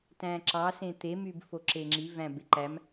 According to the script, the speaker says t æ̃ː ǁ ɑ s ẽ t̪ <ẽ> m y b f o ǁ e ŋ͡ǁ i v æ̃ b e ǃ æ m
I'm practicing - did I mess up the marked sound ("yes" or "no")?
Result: yes